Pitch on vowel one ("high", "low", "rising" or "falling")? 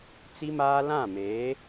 high